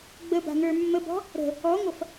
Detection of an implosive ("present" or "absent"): absent